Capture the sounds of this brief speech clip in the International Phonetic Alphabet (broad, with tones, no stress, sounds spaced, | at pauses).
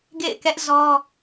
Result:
ɡ ḛ˦˨ ɪ̯ k ɛ˦ ʔ z ɔ˦